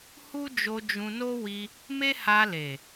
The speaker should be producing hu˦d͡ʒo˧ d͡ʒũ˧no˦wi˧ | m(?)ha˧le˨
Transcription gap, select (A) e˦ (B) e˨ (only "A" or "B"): A